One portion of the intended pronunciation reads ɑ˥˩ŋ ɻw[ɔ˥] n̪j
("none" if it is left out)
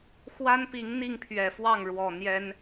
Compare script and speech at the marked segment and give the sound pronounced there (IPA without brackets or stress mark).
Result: ɔ˨˩